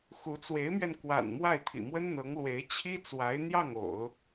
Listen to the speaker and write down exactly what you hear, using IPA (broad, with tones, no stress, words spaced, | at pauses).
xu˧˥ t͡swe˧˥ɪ̯mɥɛ˧nkwa̰˨˩n mwa˥˩ɪ̯t̪ʰḭ˨˩mwə˥nn̪ɤ˧˥ŋ lwe˧˥ɪ̯t͡ɕʰi˥t͡swa˧˥ɪ̯ n̪jɑ˥˩ŋ o̰˨˩˦ʊ̯